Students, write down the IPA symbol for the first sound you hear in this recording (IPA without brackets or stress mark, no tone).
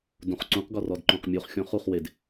d